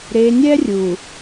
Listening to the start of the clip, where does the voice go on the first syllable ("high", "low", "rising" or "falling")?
low